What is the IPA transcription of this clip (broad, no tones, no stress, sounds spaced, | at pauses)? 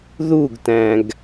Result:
ð u ɡ t æ̃ ɡ